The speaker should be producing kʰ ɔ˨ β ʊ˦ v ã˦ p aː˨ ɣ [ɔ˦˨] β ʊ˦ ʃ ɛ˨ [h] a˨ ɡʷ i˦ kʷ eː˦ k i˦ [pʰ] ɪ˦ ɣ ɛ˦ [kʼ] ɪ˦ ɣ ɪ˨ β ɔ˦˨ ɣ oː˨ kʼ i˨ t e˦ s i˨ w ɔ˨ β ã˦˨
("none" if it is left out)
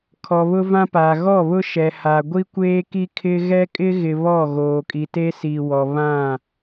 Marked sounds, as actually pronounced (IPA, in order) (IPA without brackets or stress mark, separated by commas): ɔ˦˨, h, kʰ, kʼ